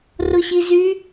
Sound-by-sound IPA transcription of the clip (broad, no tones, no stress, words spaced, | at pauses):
rʊɕizy